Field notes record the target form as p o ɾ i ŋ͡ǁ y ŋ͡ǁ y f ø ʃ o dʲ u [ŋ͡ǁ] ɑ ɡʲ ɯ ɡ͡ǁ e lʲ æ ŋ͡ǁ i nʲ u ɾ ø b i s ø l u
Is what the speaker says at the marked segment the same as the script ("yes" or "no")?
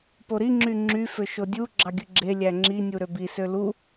no